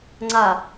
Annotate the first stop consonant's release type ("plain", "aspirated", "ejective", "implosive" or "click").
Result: click